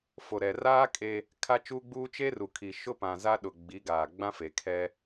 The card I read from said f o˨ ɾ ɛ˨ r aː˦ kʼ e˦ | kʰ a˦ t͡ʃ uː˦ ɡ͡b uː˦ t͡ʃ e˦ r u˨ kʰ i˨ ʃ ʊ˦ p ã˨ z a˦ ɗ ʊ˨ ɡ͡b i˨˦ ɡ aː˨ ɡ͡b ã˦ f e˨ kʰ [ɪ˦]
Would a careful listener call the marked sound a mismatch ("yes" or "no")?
yes